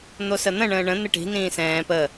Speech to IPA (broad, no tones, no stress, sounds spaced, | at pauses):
n̪ o s ə n̪ ə̃ ɳ ə̃ː ɳ ə̃ n̪ ɪ ʈ i̤ n ĩː s ɛ̃ː p ə